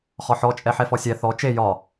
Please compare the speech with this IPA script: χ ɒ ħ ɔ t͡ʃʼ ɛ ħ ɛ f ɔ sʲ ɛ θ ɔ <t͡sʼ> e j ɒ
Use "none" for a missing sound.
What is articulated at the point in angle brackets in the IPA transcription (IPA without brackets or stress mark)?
t͡ʃ